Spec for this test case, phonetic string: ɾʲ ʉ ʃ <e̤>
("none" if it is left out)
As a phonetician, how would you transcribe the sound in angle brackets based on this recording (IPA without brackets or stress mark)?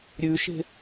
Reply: e̤